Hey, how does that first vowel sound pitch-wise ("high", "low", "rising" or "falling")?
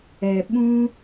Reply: low